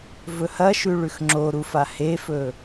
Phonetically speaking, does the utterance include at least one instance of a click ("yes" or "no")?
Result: yes